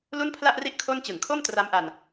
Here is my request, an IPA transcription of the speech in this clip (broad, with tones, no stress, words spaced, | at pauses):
lu˥˩npʰla˥˩ʔri˥˩ʔ kʰo˥˩n t͡ɕɯ˨˩ŋkʰo˥˩mtra˦˥mʔa˧n